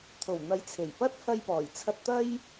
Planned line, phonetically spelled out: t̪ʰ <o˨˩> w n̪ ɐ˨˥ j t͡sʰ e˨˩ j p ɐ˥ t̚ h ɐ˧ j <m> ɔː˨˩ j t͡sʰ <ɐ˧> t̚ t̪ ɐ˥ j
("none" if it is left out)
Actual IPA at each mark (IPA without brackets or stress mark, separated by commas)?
o˨˩, p, ɐ˧